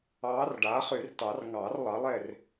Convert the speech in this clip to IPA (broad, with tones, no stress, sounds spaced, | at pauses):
ɑː˧˥ r ɖ aː˩˥ χ y˨˩˦ r t ɑ˨˩˦ r ŋ ɑː˨˩˦ r lˠ ɑ˩˥ lˠ e˥˨ r